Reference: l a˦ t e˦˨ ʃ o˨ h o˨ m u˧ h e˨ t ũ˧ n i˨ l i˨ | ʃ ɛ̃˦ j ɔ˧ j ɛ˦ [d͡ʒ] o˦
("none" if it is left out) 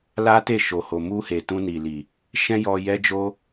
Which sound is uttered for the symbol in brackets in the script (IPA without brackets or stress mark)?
d͡ʒ